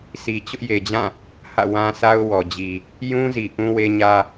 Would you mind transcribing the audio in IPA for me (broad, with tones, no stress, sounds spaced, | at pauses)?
sʰ i˨ t͡ɕ ʊ˦ ʔ j e˨ d͡ʑ ã˦˨ | h ä̰˦˨ w ã˦ sʰ a˦ ʊ̯ w ɔ˨ d͡ʑ i˨ | j ũ˦ z i˨ ʔ ũ˦ w e˦ ɲ ä˦